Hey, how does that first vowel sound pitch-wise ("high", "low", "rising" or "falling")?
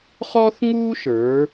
high